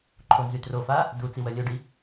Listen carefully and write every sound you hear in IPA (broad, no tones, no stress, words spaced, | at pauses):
ǃʰonzytrofa | du t͡siwœlʲœɖi